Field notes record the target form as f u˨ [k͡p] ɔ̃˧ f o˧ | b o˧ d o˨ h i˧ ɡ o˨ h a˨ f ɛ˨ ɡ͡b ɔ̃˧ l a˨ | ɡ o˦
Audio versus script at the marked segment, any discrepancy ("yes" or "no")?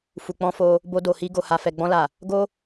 no